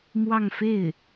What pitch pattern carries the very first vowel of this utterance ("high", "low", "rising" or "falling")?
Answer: falling